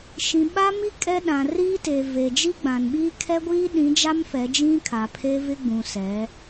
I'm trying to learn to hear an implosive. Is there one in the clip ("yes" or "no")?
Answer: yes